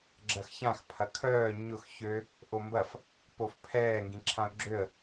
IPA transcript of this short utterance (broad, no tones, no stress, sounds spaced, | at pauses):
ɡ͡ǁ ɐ x ç ã x pʰ ɐ kʰ œː ɲ ʊ x ç ø | ʔ o m b ɐ f | p o f pʰ ɛː ŋ ɡ ĩ ǁʰ ã ʊ̯ ɡ͡ǁ ø ə̯